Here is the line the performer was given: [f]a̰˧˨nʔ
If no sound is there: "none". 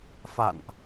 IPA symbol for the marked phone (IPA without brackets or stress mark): f